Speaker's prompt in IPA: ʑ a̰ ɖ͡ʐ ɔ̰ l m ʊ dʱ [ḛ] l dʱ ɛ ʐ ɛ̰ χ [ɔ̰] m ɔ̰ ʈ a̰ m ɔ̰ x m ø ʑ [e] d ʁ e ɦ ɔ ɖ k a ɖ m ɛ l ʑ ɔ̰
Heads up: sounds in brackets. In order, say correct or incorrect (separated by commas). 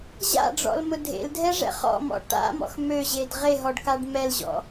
correct, correct, correct